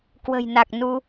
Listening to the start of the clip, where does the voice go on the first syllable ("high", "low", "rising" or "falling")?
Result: low